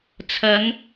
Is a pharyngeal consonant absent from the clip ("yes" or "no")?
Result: yes